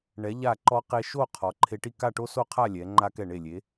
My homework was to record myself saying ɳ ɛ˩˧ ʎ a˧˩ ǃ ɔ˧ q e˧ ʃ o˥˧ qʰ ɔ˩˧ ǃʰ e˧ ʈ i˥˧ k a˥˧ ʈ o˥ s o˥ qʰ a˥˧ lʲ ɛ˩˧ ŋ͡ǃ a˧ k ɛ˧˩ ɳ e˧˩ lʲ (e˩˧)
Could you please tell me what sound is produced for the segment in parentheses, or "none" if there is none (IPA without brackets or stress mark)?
e˩˧